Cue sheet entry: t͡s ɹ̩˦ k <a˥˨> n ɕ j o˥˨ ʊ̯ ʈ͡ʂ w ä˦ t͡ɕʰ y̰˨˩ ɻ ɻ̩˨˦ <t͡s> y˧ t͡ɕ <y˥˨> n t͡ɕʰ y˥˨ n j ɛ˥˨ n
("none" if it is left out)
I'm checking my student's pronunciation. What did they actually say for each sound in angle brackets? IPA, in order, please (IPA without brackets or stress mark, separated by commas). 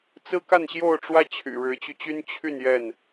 a˥˨, t͡ɕ, y˦